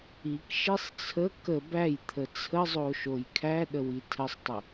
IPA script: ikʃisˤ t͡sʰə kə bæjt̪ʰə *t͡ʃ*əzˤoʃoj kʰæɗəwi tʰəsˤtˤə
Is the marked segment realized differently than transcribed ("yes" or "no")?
yes